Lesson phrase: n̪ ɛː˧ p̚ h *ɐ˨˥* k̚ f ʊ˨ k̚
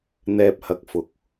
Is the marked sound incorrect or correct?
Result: correct